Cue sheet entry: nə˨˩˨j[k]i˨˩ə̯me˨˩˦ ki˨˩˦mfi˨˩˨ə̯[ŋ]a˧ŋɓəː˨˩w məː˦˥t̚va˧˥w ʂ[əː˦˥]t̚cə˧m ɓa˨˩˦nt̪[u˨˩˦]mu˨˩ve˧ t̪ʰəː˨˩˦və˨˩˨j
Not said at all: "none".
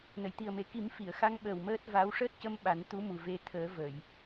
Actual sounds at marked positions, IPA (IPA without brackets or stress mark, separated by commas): t̪, x, əː˦˥, u˧˥